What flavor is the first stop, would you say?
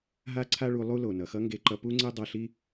click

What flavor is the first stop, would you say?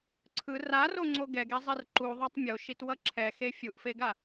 click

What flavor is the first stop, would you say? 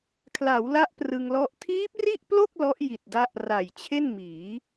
aspirated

